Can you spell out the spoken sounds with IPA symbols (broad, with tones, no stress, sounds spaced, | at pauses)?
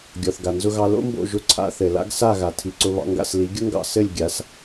ɡʲ ɔ˩ θ ɡ a˩ n z ʊ˧ ɣ ɑ˧ l o̰˥ m b o̰˥˩ ʒ ʊ˧ ǀʰ a̰˥ θ ɘ˩ l a̰˥ ɡ s a˥˩ ɣ a˩ tʰ i˩ ǀ ʊ˧ β ɑ̰˧ ŋ ɡ a̰˥˩ s l i˩˥ ɡʲ ʊ˥ ŋ ɡ ɑ̰˥˩ s ɘ˥˩ lʲ ɡʲ a˩˥ s